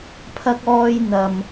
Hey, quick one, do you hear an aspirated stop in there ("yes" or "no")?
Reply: yes